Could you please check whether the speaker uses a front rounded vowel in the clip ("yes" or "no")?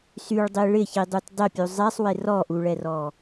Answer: yes